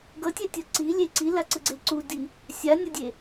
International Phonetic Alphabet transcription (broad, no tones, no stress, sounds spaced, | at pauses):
ɡ ʌ tʲ ɛ tʲ ʌ ǀ i lʲ e ǀ i l a ǀ ɯ ɡ͡ǀ e ǀ u d i | sʲ a nʲ ʌ dʲ e